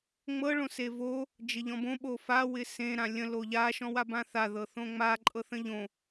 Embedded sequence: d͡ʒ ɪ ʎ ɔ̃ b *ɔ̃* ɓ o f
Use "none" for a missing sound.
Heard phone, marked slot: õ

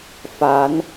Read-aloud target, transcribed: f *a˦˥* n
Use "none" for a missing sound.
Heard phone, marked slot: a˦˥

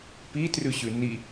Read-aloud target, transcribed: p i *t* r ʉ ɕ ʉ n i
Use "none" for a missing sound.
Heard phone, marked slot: t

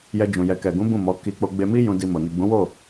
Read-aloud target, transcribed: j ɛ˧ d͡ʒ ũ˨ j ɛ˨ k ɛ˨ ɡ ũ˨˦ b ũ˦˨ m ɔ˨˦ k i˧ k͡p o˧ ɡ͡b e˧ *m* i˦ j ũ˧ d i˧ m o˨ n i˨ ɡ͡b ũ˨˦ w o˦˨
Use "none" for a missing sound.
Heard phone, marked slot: m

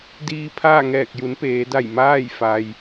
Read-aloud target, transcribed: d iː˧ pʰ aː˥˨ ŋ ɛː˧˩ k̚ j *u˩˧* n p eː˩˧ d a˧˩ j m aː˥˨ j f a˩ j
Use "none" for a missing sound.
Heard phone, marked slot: u˩˧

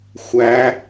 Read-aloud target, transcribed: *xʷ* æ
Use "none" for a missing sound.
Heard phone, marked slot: xʷ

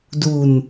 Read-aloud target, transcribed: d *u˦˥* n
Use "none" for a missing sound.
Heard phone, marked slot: u˧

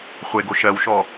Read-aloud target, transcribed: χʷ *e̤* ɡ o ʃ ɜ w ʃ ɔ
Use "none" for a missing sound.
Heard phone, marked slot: e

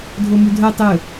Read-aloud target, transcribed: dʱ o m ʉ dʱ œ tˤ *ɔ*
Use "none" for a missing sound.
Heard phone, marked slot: ɵ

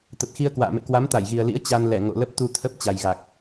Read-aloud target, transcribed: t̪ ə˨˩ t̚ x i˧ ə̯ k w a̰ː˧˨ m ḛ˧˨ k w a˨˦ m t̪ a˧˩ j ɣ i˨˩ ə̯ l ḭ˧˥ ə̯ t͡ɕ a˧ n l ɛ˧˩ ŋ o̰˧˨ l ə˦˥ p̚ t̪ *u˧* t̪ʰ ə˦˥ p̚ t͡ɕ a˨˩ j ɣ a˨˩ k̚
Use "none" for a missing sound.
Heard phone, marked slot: u˧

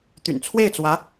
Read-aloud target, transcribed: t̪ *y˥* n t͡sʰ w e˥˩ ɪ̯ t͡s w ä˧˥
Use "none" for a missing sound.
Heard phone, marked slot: y̰˨˩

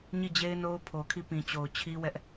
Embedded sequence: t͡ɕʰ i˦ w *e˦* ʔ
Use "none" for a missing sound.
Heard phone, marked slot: ɛ˦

